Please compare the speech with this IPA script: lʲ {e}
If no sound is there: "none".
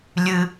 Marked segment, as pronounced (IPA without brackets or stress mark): ɨ